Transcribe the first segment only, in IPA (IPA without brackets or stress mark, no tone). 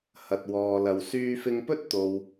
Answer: h